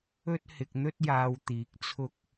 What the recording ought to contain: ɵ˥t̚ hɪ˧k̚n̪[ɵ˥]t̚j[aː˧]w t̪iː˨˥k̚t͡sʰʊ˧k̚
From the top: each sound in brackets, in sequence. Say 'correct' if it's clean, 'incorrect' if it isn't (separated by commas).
correct, correct